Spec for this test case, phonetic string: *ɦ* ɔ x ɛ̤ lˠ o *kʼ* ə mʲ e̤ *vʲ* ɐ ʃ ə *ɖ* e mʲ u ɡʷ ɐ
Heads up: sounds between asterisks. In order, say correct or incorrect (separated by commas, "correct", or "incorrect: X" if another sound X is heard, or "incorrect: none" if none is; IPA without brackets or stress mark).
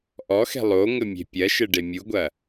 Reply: incorrect: ʔ, incorrect: ŋ, incorrect: pʲ, correct